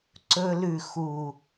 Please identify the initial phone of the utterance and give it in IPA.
ǀ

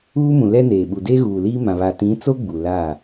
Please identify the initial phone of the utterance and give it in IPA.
uː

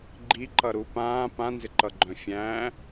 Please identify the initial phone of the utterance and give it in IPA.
ɡ͡ǃ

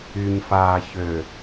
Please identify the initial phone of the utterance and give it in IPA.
y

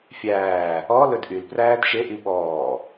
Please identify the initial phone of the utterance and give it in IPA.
fʲ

